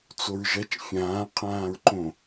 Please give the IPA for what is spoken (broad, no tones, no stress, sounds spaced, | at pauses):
t͡s o ɹ ʒ ɐ t͡ʃ fʲ ãː qʰ ãː ɹ ǃ õ